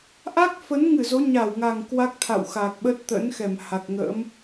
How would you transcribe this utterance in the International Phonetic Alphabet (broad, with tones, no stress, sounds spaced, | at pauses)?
ʔ a˦˥ k̚ f ə˨˦ n ŋ ɨ˧˩ z o˨˦ ɲ a˧˩ w ŋ a˨˩ ŋ k w a˦˥ k̚ t̪ʰ a̰˧˨ w x a˨˩ k̚ ɓ ə˦˥ t̚ t̪ ə̰˧˥ n x ɛ˧˩ m h a˨˩ k̚ ŋ ə̰ː˧˥ m